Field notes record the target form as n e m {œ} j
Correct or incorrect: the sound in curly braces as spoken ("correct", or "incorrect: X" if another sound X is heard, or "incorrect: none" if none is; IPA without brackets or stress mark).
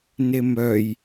correct